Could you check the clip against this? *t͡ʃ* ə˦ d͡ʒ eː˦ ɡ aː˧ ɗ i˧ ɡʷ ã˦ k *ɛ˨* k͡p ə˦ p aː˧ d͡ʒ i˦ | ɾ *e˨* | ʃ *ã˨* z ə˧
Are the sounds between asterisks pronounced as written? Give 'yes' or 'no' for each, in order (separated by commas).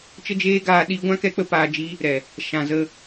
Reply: yes, no, no, yes